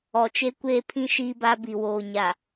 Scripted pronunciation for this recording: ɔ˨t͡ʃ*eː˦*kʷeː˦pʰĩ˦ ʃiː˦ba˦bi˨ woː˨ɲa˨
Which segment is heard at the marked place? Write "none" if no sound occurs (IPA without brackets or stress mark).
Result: e˦